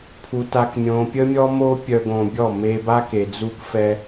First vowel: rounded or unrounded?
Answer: rounded